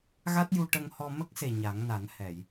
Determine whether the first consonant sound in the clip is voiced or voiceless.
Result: voiced